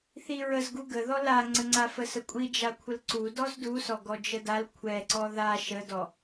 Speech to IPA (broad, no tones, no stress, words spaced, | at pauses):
θiɹəzɡu ɡəðɔ laŋ͡ǀəŋ͡ǀa fəsəkʷʼi d͡ʒakʷʰəlǀu dɔzdusɔ ɡɔd͡ʒədal kʷʰɛǀɔ ða ʃədɔ